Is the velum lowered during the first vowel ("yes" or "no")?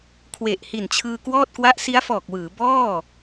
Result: no